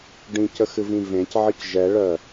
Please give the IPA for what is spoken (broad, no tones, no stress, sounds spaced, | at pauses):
ɖ ĩ c ə x ɨ v ĩ v ẽ c ʕ ɨ c ʒ ɛ ɭ œ